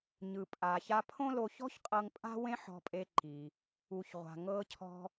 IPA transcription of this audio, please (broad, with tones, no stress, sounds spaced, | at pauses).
ɲ ɯ˩ pʼ a˩ ç a˧ pʰ õ˥ l o˧ ç ɔ̤˥ ç qʼ ɤ˧ ŋ pʼ a̤˥ w ẽ˥ ħ ɔ̤˧ pʼ e˧ ǃ i˩ | u˩ ç ʁʷ a̤˩ ŋ ɤ˧ cʰ ɔ̤˧